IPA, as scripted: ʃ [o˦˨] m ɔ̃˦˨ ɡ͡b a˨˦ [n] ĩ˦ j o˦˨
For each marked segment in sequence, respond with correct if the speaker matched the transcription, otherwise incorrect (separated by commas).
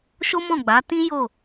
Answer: incorrect, incorrect